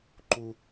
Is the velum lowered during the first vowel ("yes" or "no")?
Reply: no